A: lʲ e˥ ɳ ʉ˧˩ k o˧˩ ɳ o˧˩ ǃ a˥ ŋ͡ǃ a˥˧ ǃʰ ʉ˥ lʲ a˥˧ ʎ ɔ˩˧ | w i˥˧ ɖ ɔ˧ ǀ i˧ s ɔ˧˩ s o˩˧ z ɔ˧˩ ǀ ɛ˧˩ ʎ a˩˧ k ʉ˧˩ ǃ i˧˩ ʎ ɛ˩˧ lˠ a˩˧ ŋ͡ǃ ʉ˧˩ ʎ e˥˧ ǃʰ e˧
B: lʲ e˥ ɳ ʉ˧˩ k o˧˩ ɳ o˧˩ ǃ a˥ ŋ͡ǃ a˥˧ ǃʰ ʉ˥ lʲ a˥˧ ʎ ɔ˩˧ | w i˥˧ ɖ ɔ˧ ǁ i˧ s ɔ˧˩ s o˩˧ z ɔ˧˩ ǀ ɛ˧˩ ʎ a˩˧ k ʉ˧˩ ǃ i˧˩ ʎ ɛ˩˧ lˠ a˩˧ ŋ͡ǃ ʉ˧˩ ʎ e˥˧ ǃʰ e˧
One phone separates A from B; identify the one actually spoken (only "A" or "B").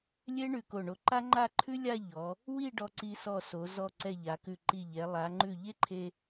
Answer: A